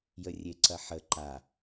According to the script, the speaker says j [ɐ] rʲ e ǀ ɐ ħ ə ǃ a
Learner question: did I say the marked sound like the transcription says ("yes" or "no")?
no